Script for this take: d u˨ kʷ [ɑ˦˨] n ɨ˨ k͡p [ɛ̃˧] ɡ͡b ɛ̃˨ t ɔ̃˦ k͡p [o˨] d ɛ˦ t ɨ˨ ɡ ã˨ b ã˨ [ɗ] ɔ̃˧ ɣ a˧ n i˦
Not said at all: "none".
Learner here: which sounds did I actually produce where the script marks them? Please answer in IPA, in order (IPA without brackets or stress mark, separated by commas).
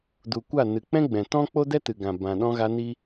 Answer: a˦˨, ɛ̃˦, o˦, ɗ